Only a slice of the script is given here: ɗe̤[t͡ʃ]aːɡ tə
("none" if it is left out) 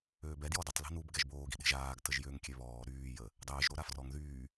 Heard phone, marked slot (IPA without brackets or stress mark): ʒ